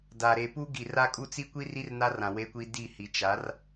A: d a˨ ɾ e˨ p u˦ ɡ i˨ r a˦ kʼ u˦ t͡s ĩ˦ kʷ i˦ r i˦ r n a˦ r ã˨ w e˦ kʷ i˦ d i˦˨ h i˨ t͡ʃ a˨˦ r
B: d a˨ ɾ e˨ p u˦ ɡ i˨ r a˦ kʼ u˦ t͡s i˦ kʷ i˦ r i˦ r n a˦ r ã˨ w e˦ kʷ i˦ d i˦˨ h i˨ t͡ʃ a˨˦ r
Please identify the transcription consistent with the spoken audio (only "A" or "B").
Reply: B